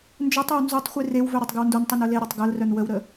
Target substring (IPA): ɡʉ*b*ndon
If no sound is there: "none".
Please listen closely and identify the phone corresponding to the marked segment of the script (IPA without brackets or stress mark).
w